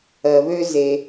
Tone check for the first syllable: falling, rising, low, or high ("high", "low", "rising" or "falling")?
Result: low